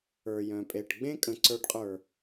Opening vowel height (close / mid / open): mid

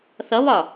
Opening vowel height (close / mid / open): mid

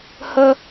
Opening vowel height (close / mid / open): mid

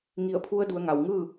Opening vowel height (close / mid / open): close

